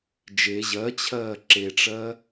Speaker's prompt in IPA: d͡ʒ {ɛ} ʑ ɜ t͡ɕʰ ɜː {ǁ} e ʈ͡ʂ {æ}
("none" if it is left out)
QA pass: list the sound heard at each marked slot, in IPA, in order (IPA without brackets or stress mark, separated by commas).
e, ǁ, ɜ